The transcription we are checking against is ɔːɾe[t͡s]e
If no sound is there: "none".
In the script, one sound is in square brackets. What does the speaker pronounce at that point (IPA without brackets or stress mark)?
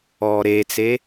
t͡s